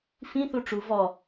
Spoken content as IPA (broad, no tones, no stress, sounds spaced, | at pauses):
f ĩ θ u ʈ͡ʂ u v ɔ